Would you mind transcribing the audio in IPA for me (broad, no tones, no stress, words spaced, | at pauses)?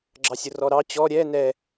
ɡ͡ǁɑsʲʊrɔɾɑ t͡ɕɔ ɾʲɛ nɛ